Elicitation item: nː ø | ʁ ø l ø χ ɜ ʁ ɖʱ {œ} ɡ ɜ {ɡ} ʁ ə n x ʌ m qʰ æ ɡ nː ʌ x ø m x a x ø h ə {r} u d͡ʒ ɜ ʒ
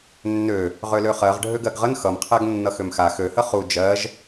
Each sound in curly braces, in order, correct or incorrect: incorrect, correct, incorrect

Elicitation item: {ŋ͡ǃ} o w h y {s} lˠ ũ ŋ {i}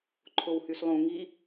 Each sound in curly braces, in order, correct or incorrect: incorrect, correct, correct

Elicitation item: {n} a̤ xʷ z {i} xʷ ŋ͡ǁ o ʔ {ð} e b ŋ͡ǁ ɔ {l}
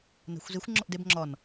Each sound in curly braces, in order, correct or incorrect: correct, correct, incorrect, incorrect

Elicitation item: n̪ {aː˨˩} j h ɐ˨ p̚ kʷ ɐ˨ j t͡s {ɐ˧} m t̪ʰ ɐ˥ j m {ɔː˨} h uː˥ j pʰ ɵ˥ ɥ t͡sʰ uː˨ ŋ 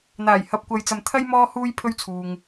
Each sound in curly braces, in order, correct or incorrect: correct, incorrect, incorrect

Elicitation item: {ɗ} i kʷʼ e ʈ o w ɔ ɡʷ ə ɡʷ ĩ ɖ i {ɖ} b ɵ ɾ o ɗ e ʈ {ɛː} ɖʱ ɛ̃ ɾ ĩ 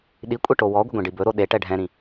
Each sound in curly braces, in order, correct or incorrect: correct, incorrect, incorrect

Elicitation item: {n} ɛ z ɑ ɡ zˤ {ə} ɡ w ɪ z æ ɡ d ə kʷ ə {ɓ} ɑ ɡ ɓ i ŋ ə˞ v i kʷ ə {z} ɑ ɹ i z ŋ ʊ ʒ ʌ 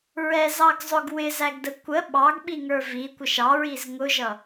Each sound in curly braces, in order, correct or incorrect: incorrect, incorrect, correct, incorrect

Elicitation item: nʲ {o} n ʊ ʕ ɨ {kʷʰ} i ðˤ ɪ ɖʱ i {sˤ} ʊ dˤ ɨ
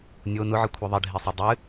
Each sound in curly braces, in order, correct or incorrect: correct, correct, correct

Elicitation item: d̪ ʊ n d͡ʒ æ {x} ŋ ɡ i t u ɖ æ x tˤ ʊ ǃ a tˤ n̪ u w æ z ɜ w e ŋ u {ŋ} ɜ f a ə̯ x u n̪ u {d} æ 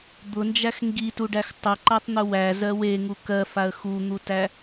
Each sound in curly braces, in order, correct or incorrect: correct, incorrect, incorrect

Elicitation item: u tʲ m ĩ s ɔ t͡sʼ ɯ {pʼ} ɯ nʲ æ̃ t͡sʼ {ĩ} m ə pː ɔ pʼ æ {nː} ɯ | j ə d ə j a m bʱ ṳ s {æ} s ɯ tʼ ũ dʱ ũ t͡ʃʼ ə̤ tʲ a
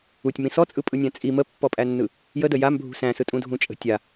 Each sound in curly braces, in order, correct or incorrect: correct, incorrect, correct, incorrect

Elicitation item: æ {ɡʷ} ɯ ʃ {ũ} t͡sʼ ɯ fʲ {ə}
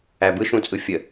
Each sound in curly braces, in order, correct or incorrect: incorrect, correct, correct

